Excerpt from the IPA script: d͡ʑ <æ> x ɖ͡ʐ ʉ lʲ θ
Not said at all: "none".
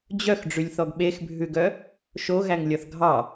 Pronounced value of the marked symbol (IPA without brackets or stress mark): œ